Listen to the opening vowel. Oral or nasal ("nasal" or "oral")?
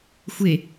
oral